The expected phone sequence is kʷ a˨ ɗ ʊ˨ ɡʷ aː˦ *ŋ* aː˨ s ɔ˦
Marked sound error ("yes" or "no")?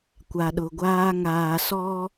no